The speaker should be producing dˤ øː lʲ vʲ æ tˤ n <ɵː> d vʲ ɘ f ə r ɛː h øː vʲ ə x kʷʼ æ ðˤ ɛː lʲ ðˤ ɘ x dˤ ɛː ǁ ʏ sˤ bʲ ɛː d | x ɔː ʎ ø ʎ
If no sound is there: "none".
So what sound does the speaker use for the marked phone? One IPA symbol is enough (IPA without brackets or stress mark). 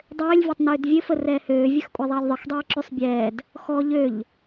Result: øː